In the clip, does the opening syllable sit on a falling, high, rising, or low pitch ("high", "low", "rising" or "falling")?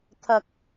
low